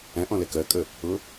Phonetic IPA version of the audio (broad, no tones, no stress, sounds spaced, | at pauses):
æ̃ ʔ ɔ̃ l ɛ k ɜ kʼ ə | ʊ